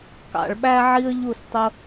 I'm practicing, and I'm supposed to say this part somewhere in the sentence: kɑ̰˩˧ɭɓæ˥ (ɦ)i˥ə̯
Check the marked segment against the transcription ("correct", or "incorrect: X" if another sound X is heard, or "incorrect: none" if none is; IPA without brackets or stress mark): incorrect: ʕ